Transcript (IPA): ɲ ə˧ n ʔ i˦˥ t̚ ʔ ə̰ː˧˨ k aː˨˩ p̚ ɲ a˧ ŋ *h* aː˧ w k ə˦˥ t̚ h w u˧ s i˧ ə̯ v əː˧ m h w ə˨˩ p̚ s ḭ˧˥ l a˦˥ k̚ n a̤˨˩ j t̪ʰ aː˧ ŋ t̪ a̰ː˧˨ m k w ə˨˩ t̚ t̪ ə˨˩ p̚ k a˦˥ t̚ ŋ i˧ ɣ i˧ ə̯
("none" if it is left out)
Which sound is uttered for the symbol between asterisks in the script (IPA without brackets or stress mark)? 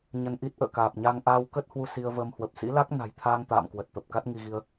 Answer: ʔ